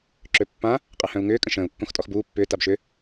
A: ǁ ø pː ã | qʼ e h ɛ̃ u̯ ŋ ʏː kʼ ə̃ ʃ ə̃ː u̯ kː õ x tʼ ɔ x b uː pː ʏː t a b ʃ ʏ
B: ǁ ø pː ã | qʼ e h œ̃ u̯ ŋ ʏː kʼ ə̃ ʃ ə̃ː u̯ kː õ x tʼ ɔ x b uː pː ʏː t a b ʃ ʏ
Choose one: B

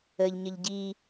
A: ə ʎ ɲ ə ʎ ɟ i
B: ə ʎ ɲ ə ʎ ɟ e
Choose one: A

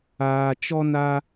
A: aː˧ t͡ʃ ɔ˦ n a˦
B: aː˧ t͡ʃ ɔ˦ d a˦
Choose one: A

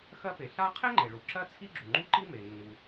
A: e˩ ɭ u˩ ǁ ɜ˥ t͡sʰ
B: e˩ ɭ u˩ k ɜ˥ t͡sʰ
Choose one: A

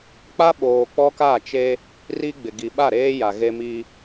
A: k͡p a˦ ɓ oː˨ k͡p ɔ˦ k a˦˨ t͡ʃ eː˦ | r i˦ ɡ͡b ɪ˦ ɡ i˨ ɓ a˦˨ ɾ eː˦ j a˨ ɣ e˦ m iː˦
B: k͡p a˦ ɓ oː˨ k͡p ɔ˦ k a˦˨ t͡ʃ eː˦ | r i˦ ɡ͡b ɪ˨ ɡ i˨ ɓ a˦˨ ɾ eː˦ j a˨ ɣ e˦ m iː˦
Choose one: B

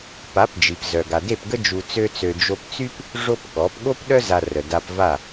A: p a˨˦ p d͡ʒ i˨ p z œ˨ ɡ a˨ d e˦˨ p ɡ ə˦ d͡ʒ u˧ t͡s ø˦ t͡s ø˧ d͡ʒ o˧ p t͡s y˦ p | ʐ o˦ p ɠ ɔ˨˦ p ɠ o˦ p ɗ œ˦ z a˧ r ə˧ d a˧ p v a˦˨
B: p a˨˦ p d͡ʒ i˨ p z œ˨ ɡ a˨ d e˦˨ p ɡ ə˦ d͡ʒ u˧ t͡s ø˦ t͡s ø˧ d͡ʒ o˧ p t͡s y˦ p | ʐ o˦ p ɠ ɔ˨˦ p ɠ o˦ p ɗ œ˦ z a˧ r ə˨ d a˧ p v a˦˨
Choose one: B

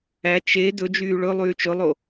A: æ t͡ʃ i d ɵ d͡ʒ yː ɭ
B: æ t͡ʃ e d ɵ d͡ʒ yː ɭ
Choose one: B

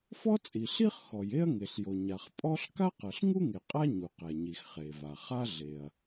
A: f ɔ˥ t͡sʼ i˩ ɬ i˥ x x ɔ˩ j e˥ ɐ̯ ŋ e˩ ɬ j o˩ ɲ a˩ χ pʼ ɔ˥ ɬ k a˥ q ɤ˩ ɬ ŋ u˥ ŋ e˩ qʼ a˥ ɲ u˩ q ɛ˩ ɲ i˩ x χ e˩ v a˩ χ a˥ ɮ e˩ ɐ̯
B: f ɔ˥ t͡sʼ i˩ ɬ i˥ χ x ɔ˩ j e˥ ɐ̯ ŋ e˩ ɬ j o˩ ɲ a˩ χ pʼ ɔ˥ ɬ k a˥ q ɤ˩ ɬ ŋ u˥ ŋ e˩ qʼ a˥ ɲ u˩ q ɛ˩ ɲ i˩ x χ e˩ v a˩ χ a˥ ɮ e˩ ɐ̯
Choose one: B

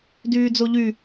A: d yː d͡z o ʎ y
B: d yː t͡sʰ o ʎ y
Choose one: A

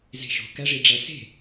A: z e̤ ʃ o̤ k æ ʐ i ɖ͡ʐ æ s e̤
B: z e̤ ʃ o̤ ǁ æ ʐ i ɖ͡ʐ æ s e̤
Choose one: A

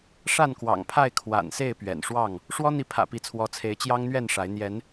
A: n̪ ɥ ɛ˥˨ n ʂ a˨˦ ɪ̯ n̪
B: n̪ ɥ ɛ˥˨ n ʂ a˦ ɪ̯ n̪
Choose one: A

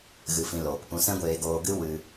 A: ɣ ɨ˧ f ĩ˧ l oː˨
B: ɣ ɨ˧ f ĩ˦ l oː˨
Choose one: A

